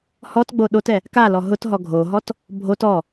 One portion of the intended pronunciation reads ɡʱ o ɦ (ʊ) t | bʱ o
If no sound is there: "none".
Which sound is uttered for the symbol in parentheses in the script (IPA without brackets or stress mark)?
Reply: ɔ